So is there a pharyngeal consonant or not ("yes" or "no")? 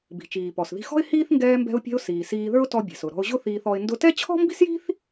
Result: no